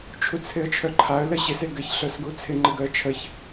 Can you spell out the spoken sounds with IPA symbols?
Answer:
t͡ʃʰut͡sʰɪə̯t͡ʃʰœǃʰaə̯ ləɕɪs eɡɘç ɬœsɡut͡sʰɪ ŋ͡ǃɘɡœə̯t͡ʃʰəç

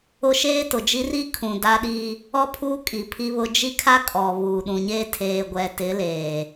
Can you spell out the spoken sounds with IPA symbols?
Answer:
ʊ˦ ʃeː˦tʊ˨d͡ʒi˦ ri˦ kʰũ˨da˦ ɗi˦ | ɔ˦pʰuː˦kʼi˨ pʰi˦βʊ˦ d͡ʒi˦kʰa˦ kʼɔ˨ βuː˨ ɗũ˨ɲeː˦ tʰeː˨ ɡʷɛ˨ tɪ˨˦leː˨

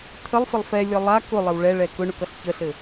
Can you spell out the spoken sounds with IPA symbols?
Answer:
t̪ʰəlˠfɘlˠ fɛlʲɒ lˠa kʊlˠəw ɭɛɭɛ kʊɳʊkʌɬ çəɬɘ

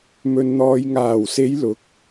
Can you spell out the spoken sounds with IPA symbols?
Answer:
mɵ˨nn̪ɔː˨jŋaː˨˩wse˨˧j lʊ˨˥k̚

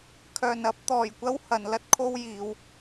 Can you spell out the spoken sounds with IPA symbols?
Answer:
kʰœː˨˩nɐ˥p̚t̪ɔː˨˩j kʷɐ˥whɐ˨˩n lɐ˥t̚kʰo˥wjiː˨˧w

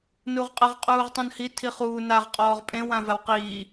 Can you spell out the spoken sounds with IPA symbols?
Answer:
nuʁqʼəʁ qʼuːʁtˤũnhi tʰiχuː naʁ qʼɔːʁpʼẽ wãvawqiː

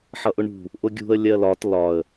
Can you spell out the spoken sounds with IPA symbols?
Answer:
ħʌʔʊɳṳ | ʔʊɡʲṳə̯ lʲɜlɒt lɒə̯

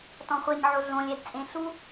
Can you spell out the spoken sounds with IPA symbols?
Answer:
tɔ̃χʷeɲʕo ɮõlʲɛdt͡sʼẽ ɬu

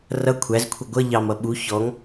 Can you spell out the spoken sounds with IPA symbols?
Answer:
rʌ kʷʰæzkʷʰʌ ɡʷʌ ʎɑmʌ ɓu çɔŋ

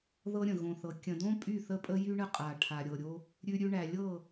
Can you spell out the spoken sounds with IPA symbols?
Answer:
ðɤ˦ɾʲə̃˨ ɣõ˨θɤ˨ kʲə̃˨dõ˦ pʼy˦˨θə˦pʼə˦jy˦ ɳə˦qʼa˨ ʈʰa˨ɾʲɤ˨ɾʲo˦ | ɾʲʉ˦ɾʲʉ˦ ɳæ˨lʲɤ˦˨

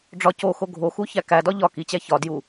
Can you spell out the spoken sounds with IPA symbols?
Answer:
ɖ͡ʐɒ coxo ɡʱoxu çækædɒ ʎɒ kit͡ɕæ çɒ dju

